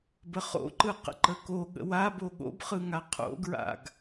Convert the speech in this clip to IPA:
bəχo̰ǃɯ qə̰ǃəko ɠə̰wabo ɠo̰bχɯŋa qʰo̰ɡɹa̰ɡ

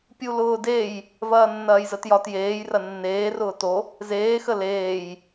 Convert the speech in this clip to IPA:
pʲulʊːdej | vɐːnːɐːjzətjɒt jeːj rɐnːeː rʊːto | zeː xəleːj

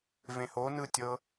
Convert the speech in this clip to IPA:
vẽho nɯtʲɤ

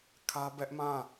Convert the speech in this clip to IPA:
kʰä˦bɛ˦ʔmã˦˨

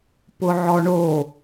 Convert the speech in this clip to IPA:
pʊʕɔɳo

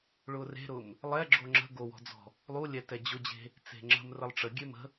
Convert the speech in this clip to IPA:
ɭʊre̤ɾʊm | lˠɛɡ͡ǁo ŋ͡ǁə̤ ɡowɔ̤d͡zɔ̤ | lˠulʲɛ tɛd͡ʑʊd͡ʑe̤ | t͡se̤ŋ͡ǁə̤m rəlˠʈ͡ʂəɡʲe mə̤

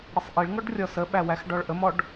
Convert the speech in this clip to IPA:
ɽəsˤʔiɭŋɔɖ rʲɔsəɓæ wæxɖɔɭʔəmɔɖ

